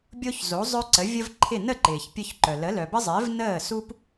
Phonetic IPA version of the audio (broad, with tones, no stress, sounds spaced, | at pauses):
bʲ o˥ ç z o˩˥ zˤ œ˥ ǀ ə˩˥ vʲ ə˥ v ǃʰ ɪ˥˩ n ə˥˩ ǃ ɪː˩ ç pʲ œ˧ ç ǃ œ˩ l ə˩˥ l œ˩ b ə˥ zˤ ɪː˩˥ v n əː˥˩ s u˥ p